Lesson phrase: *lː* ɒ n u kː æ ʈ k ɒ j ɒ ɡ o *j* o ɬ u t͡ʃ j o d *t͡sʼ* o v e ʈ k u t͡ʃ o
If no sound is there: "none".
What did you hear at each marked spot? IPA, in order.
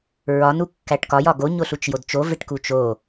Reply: ɹ, ɲ, t͡ʃ

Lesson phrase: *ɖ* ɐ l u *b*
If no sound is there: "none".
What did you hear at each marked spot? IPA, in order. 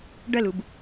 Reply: ɖ, b

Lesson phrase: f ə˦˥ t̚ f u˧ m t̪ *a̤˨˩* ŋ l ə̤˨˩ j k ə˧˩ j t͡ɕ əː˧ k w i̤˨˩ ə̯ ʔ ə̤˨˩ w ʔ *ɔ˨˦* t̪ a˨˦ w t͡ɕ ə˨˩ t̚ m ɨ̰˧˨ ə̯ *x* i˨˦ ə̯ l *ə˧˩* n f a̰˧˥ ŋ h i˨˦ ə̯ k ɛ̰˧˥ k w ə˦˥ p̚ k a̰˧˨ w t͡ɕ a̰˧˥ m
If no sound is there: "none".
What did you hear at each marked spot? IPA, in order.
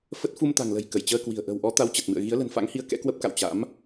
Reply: a̤˨˩, ɔ˨˦, ɣ, ə̤˨˩

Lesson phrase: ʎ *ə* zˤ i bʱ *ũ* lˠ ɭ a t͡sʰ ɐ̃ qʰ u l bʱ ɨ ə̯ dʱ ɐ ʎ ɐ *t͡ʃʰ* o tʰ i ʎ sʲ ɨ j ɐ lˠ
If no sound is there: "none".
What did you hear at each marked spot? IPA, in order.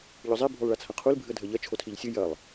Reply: ɵ, u, t͡ʃʰ

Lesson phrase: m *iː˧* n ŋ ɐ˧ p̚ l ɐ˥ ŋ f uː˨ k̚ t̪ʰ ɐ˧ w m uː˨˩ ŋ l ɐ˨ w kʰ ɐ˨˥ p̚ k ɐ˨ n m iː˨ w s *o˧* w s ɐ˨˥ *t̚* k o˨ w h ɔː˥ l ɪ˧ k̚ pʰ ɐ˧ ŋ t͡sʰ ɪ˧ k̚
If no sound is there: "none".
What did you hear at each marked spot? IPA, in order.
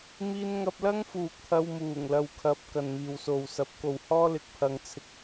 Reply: iː˧, o˨, p̚

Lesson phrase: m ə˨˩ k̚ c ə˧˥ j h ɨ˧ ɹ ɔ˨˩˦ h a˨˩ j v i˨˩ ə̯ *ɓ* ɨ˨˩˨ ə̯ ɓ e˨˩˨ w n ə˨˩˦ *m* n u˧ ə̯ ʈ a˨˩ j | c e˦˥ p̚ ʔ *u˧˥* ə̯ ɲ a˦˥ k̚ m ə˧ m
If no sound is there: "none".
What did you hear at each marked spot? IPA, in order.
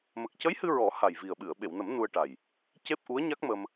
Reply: ɓ, m, u˧˥

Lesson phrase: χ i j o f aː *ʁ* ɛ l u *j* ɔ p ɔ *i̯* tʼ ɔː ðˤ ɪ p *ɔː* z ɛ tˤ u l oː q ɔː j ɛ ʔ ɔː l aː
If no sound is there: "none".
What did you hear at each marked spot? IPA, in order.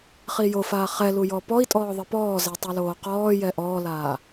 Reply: χ, j, i̯, ɔː

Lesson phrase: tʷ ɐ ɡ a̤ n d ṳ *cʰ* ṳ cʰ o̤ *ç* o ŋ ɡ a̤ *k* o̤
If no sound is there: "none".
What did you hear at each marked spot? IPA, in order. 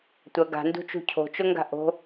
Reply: t͡ʃ, t͡ʃ, ʔ

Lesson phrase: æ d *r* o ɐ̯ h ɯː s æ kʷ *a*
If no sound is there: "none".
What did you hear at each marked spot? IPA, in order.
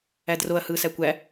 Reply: r, æ

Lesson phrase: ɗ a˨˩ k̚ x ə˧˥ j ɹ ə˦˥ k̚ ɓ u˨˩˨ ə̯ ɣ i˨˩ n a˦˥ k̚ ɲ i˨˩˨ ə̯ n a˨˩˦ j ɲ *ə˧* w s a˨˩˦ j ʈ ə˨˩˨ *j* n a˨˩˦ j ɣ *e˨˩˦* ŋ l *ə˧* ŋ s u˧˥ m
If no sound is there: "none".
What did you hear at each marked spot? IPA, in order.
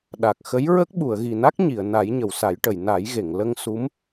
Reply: ə˨˩˨, j, e˨˩˨, ə˧

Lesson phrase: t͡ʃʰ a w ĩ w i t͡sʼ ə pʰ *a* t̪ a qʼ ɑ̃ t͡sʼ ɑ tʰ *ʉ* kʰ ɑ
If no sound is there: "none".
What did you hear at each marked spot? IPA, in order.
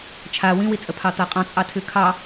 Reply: ɑ, ʉ

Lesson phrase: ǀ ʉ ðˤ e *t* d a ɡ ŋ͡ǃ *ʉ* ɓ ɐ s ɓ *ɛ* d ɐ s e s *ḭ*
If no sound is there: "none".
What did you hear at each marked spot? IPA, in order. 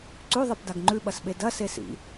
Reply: p, ʉ, e, ḭ

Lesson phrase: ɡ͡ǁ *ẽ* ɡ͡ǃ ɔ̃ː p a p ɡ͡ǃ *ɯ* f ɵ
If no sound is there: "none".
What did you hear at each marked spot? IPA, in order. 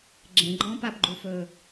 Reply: ẽ, u

